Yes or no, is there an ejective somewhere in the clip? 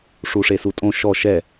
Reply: yes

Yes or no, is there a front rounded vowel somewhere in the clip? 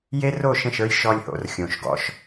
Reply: no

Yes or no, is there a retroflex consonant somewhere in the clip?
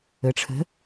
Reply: yes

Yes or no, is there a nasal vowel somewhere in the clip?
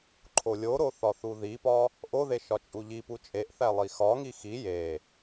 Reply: no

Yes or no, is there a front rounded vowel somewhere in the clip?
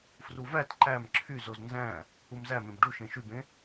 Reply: yes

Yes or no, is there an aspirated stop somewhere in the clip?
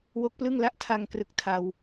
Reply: yes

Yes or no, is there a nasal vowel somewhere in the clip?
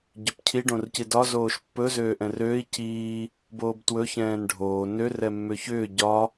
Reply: yes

